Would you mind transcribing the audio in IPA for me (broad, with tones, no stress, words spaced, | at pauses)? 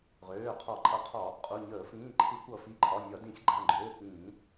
ʁøː˩˧˩qʰɒ˧˩˧ǃʼʌ˧˩˧qʰɒ˧˩˧ | qʼu˩˧˩ɲəː˧˩˧fĩː˩˧˩ ǃʰɨ˧˩˧kʷʌ˧˩˧ fi˩˧˩ǃʰɒ˩˧˩ nʲɒ˧˩˧dĩ˧˩˧sʲ ɡ͡ǃã˩˧˩ɡ͡ǃøː˩˧˩kĩː˧˩˧